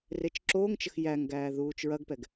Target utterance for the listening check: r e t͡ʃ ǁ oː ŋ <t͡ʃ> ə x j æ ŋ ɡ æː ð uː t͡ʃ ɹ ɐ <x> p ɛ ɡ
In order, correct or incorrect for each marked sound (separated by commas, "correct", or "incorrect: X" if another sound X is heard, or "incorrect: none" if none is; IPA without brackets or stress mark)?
correct, incorrect: ɡ